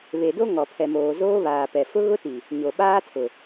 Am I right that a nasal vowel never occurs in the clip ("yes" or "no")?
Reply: yes